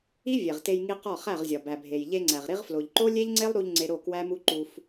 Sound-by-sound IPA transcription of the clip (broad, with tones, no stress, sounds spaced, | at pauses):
i˦ vʲ e˨ ʁ t e˧ j ŋ i˧ q ɒ˦˨ χ æ˦˨ ʁ zʲ ɒ˨ b æ˨ bʱ e˨ j ʎ e˧ ŋ͡ǀ æ˨ ʁ ɾ i˧ ʁ f l o˨ ʎ ǃ o˦ lʲ e˦ ʎ ŋ͡ǀ e˦ lˠ ɾ u˧ ʎ ŋ͡ǀ e˧ ɾ o˦˨ k w æ˦ m u˦ ǃ u˧ f